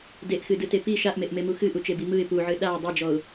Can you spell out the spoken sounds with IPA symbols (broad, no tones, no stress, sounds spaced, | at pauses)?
d e ʔ x ɨ d ɯ t e p i ʃ a ʔ m e ʔ m e m u x ɨ ʔ u t͡ʃ e b i m ɯ ɪ̯ p u ʕ ɨ ɗ a ʊ̯ dˤ e d͡ʒ ɔ ʊ̯